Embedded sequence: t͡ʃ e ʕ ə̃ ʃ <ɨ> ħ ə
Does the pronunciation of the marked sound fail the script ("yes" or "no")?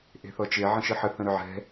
no